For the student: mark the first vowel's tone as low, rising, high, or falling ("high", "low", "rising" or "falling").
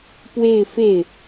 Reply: falling